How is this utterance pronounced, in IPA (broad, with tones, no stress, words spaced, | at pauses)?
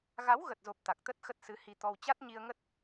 ɣa˨˦wɣə˨˩t̚zo˨˩p̚ t̪a˨˩k̚t̪ə˦˥t̚ xə˦˥t̚sɨ˨˦hi˧t̪ɔ˧w t͡ɕa˦˥t̚ɲi˧ə̯ŋə˦˥t̚